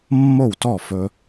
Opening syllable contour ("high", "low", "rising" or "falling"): falling